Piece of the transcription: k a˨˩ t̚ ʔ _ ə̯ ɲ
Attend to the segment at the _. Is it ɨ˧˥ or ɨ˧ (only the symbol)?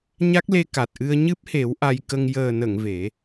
ɨ˧